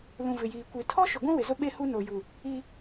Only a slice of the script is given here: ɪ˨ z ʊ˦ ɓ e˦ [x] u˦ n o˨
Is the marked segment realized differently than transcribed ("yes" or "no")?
yes